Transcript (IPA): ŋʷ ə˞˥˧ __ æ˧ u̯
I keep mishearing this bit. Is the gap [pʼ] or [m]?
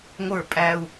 pʼ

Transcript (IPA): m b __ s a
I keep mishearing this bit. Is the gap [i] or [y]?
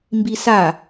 i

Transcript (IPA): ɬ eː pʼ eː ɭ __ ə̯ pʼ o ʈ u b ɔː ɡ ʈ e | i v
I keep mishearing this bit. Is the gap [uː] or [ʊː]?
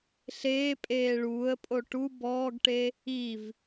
uː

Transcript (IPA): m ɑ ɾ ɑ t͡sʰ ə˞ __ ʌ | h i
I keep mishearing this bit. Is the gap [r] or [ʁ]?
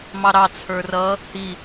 r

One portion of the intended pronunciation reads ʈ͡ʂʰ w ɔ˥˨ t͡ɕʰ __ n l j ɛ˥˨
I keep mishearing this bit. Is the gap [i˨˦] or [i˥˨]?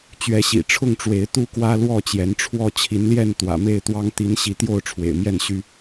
i˨˦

